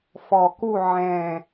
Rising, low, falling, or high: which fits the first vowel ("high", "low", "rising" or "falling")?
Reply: low